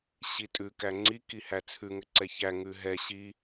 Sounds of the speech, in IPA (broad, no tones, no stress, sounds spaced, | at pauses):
ɕ i tʼ ʉ k æ ŋ͡ǀ i k i h æ t͡sʰ ʉ ŋ ɘ ǀ ɛ ç æ ŋ ʉ ɦ ɛ ɕ i